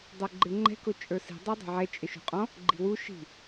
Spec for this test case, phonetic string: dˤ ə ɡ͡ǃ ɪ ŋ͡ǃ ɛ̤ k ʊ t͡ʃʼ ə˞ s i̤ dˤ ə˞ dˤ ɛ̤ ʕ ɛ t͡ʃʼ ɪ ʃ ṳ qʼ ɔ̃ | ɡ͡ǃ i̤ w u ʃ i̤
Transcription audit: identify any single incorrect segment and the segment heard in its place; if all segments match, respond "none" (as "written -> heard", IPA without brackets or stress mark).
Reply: ə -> ə˞